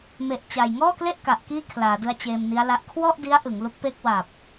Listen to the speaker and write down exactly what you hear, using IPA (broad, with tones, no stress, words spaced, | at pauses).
me˨˩ʔt͡ɕa˨˩jŋɔː˥˩kle˥˩ʔ ka˨˩ʔkiː˥˩kʰlaː˩˦dɯ˧a̯ t͡ɕeː˧mni˦˥a̯la˦˥ʔ kʰwɔ˥˩ʔdi˦˥a̯ ʔɯ˩˦ŋlu˦˥k̚pe˥˩k̚ waː˨˩p̚